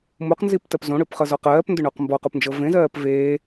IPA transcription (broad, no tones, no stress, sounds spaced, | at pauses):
m u q n z i p t ɜ p z õ ɽ ʏː p χ ɤ z ɔ q ɜː p n d ʏ ɳ o q m b ɔ q u p n d͡ʒ ɤ v ẽ z ɜː p v eː